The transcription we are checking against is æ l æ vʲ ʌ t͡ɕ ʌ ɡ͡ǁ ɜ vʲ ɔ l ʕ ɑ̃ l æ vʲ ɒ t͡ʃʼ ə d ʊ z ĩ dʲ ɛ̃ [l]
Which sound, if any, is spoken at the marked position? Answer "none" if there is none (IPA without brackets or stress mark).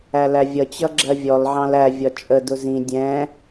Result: none